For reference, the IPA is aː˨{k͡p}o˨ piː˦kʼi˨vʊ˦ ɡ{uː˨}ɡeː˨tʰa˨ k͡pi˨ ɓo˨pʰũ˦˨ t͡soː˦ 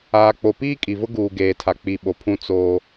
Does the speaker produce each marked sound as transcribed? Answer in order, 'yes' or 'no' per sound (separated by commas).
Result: yes, yes